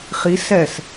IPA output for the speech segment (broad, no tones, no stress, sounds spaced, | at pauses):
χ i s ɛ s